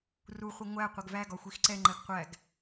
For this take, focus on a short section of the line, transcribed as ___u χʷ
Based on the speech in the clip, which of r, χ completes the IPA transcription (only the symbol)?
r